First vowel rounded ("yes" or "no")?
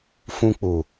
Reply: yes